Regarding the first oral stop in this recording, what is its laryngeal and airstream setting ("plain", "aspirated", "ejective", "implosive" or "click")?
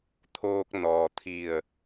aspirated